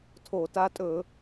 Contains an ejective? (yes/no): yes